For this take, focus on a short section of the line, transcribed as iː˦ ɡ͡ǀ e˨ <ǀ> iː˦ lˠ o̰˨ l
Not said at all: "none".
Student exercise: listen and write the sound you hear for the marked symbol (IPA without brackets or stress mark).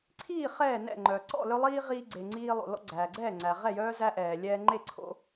ŋ͡ǀ